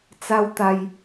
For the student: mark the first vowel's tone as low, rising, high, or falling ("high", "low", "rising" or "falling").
high